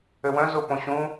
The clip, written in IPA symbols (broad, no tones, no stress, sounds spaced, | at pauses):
ø w œ̃ z o p õ ɕ ũ